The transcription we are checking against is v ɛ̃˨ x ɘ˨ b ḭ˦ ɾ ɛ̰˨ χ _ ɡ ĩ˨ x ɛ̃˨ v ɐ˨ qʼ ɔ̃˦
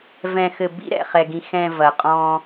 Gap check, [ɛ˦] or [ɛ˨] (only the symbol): ɛ˨